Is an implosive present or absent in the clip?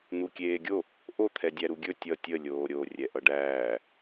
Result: absent